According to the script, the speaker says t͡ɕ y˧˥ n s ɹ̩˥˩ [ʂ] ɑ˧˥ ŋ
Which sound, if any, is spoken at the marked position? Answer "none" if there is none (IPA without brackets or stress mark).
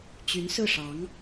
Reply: ʂ